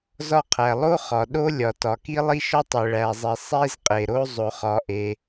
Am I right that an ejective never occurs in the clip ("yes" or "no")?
no